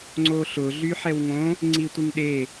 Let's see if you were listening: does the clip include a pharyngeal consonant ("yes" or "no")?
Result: yes